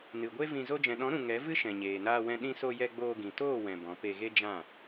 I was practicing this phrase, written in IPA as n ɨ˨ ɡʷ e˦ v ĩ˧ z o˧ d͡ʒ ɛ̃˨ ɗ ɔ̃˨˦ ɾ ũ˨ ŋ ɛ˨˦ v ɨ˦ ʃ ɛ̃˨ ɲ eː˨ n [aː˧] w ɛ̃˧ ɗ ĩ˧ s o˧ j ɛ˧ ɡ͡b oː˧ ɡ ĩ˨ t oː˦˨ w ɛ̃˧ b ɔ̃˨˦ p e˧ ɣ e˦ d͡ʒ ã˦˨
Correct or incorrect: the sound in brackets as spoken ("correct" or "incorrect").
correct